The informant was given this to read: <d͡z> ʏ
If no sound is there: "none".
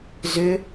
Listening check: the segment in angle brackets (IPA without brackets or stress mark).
z